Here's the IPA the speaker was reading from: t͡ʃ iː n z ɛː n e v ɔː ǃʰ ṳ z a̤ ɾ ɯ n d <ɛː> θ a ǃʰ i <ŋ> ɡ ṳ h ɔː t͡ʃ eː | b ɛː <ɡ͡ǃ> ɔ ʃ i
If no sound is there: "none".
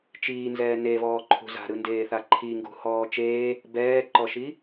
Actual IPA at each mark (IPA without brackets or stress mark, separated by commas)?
eː, ŋ, ǃ